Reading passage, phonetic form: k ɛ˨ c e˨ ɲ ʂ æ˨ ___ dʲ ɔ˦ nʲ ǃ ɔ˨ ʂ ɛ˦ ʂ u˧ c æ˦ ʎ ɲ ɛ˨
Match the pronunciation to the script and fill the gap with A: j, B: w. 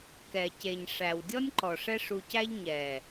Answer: B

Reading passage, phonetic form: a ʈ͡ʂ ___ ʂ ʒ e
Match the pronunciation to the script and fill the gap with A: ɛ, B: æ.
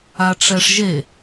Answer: A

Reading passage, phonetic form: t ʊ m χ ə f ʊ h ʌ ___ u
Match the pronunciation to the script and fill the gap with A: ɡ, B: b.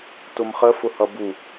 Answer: B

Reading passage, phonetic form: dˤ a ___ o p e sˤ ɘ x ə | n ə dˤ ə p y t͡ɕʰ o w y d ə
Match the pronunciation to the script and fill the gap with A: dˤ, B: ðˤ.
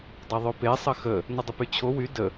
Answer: B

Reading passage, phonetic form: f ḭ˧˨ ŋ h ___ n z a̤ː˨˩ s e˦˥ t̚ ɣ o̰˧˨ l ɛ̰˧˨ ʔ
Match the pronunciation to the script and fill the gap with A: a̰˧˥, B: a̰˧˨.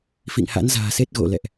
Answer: A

